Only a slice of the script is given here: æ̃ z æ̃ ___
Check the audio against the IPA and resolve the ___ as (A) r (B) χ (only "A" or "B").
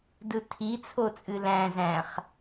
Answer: B